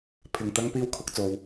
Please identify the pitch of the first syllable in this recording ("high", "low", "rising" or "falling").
low